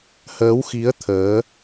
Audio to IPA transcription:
həː˨˦wxi˨˦ə̯ t̪ʰəː˨˦

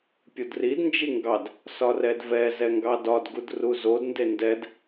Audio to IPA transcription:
pʲodrid nd͡ʒiŋɡɑd | sɒrɛdvɛ zɛŋɡɑdɒd ɡudruzod ndendɛd

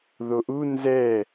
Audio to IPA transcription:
ðoʔu nzɛ

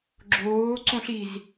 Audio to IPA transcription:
ɡ͡ǁoː ǀõɬiz

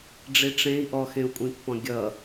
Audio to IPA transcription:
ɖ͡ʐiʈ͡ʂẽi̯ ʔɔxẽu̯kʷʼĩpːɔ̃ ɡʲʌ

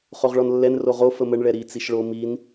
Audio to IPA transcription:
χoʁɭɔnlːɛn roʁo fəməɳ ɭɛɾi t͡siʃɭo min

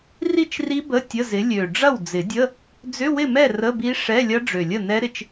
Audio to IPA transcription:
ri˥˨t͡ʃri˦˥ bə˧˥˧ tʲə˧˥˧zɪ˨˥ lʲø˨˩ ɖ͡ʐɐ˥˨wd͡zɪ˨˩˦dʲə˧˥˧ | d͡zʏ˧˥˧wɪ˥˨mɛ˥˨ rə˧˥˧bi˦˥ ʂɛ˧˥˧ lʲɐ˦˥ ɖ͡ʐø˨˩lʲə˥˨ nɛ˦˥ɾɪ˨˩t͡ʃ

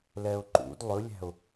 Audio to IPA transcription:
lɛʊ̯ǃṵd lˠɵlʲæ̤ʊ̯

